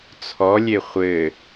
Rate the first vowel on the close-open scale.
mid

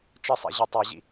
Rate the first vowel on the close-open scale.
mid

